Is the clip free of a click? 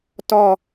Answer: yes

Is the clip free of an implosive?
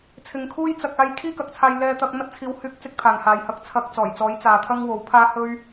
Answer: yes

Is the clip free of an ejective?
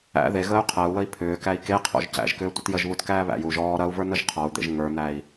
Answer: yes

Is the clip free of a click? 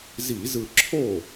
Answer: no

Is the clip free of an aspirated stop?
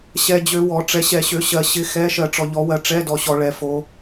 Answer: yes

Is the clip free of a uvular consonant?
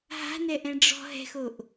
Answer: yes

